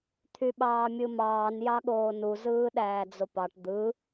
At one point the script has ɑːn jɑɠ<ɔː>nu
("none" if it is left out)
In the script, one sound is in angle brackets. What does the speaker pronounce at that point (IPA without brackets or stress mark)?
oː